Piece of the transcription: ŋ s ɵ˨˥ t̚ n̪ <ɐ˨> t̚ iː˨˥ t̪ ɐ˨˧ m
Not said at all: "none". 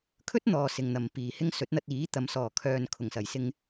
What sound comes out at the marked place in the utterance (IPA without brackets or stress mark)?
ɐ˧